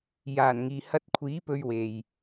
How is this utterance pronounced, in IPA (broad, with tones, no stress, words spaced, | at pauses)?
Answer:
jaː˨˩n ŋiː˨hɐ˧t̚kʷʰiː˨˥ pɵ˧ɥwe˨j